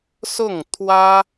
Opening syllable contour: falling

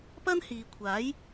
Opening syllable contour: high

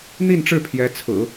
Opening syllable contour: falling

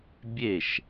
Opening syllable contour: falling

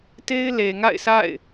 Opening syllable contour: high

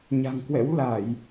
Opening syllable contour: low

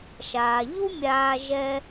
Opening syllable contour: low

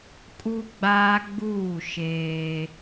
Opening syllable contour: high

